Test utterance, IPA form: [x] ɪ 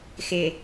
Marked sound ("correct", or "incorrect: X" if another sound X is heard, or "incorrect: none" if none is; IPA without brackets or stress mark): correct